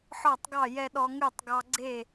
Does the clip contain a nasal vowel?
no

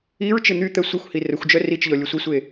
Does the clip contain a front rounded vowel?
yes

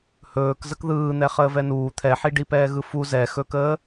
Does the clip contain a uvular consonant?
yes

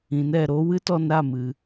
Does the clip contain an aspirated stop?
no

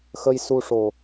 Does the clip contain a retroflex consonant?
yes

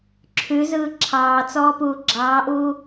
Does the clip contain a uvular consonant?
no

